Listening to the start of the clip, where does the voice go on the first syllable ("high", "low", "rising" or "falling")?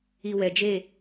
low